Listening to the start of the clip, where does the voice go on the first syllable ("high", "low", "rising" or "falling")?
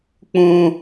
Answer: high